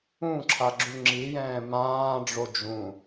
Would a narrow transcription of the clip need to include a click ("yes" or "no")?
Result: yes